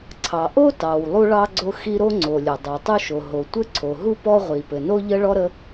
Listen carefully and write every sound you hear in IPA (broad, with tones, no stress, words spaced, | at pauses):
ǀʰɑ˩ʔo˥ tɑ˩w lˠu˥ɭɑ˥ɡ͡ǀo˥xi˥ ɾo˥ŋ͡ǀo˩lʲo˩ dˤo˩tˤu˥ʃo˩ ɦo˩tʷɘ˥ǀʰo˩ɦu˥ pɔ˥ʁʷi˩ pɘ˩no˥ʎə˥ɭɔ˥ ɾə˥